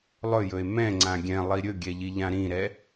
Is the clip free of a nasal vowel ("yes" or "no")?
no